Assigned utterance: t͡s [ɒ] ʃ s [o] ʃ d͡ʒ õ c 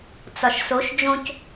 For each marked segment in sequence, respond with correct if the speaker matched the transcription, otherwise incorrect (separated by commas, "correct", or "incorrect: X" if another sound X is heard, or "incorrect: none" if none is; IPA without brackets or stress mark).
correct, correct